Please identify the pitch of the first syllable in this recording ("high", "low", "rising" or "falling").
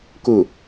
falling